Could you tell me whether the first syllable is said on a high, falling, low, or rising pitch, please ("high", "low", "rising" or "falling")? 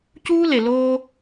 high